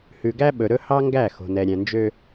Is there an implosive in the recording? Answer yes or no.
yes